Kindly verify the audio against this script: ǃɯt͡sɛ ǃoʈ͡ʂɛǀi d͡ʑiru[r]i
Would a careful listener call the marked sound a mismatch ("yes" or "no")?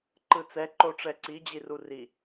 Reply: no